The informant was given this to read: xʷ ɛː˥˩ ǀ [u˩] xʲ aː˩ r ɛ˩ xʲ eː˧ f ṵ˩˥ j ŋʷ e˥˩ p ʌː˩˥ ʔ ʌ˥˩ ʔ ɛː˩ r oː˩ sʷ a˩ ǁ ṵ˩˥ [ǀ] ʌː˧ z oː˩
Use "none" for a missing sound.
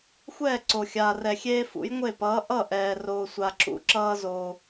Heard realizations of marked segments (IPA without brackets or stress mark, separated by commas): o˩, ǁ